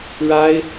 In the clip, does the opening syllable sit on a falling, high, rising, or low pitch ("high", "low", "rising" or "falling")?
high